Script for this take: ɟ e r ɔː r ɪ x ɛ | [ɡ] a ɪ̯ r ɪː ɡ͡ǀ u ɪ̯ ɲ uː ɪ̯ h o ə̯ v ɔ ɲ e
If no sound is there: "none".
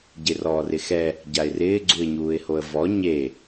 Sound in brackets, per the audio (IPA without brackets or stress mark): ɟ